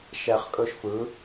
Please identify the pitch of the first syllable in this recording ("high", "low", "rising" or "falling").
low